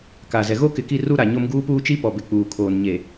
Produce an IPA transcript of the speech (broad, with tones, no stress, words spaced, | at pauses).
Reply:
ka˨zɛ˨ ɣo˦kɪ˨ki˦˨ru˦ ɾa˨ɲo˦m ɡuː˦puː˦t͡ʃi˦pɔ˨ bɪ˨k͡puː˨kʰoː˨nɲe˨